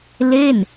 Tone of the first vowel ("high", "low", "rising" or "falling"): falling